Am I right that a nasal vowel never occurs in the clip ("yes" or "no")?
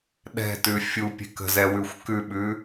yes